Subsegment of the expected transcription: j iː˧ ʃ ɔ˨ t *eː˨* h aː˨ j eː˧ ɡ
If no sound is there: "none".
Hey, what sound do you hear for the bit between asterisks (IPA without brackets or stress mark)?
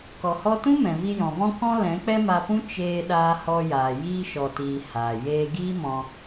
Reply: iː˨